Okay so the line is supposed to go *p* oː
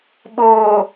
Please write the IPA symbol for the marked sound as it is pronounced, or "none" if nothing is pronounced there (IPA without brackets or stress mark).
ɓ